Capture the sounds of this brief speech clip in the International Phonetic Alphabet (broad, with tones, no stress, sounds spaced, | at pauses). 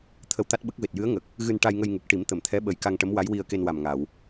t̪ʰ ə˧ w t̪ a˦˥ t̚ ɓ ə˦˥ k̚ v e˨˩ t̚ j ɨ˧˥ ə̯ ŋ ə˨˩ k̚ | ɣ ɨ˧ n ʈ a˧ j ŋ ə˧ j ŋ u˨˩ k̚ ʈ i˨˩˦ m t̪ ə˨˩˨ m t̪ʰ ɛ˧˥ ɓ ə˨˩ j k a˧ ŋ ʈ ə˧˥ m w a˧˥ j w i˧ ə̯ k e˧ n w a˨˩ m ŋ a˨˩˨ w